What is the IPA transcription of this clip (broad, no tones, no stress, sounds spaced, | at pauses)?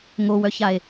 ŋ o w œ ç a e̯